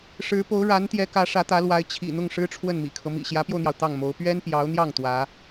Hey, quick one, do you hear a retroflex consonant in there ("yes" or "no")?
yes